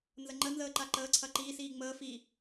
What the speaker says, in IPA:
nzəŋ͡ǃə nzəːǃaǃəː ǀʰɐǃiːsiː ŋ͡məː fi

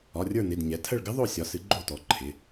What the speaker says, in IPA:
ɒ˩˧˩rʲə˞˦˨ nɪ˩˧˩dɲɛ˩˥ tʰə˦˨ɭɡɪ˦˥ðˤo˦˨ sʲɒ˩˥sɨ˩˥ ɡ͡ǃo˦˨tɔ˩˥ ǃʰɪ˩˧˩

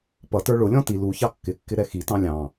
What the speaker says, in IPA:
pʌtə˞ ɭʊlʲɔ̃ ti lu çɑkːɪkːɪ ɾɛxitɑ̃ lʲɑ̃

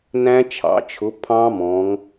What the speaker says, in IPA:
næ̃˦˥t͡ʃʰɑ̰˩˧t͡ʃʰʊ˩˥pʰɑ̃˦˥ mɔ̃˩˧ŋ

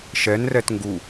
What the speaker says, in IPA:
ʃɛnrɛt ŋɡu

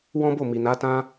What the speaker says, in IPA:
wɔ̃˦bo˦˨mi˨ na˨˦tã˦

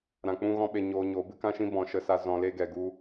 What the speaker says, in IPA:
ɾã˧k͡pũ˦ɣɔ̃˦ɓe˧ ɲoː˧ɲoː˨˦ bɨ˦kã˦ʃĩ˦ bɔ̃˨˦ʃə˧sa˧ zɔ̃˧le˦ ɡɛ˨ɡu˧

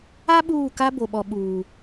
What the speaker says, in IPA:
a˦ ɓuː˦˨ka˦ bo˨ɓɔ˨ ɓuː˨

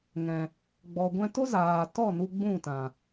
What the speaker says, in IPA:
ŋɛ̃˨ | ɡ͡bɔ˨ɡʷɛ̃˧to˦ zaː˨ tɔ˦˨ nu˧ɡ͡bũ˦˨tã˨

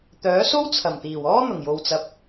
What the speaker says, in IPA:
t̪œː˨˥so˥w t͡sʰɐ˨˩mt̪iː˨˩wɔː˥ n̪ʊ˨˩ŋjo˨wt͡sɐ˨p̚

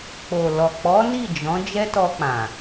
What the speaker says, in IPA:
k͡po˨lɔ˨ k͡pɔ˨˦ ni˦˨d͡ʒɔ̃˨˦ d͡ʒɛ˦tɔ˧k͡pã˨

